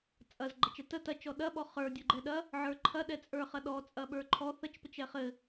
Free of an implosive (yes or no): no